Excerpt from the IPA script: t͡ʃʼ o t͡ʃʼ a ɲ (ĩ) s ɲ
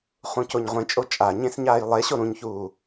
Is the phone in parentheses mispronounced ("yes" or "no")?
yes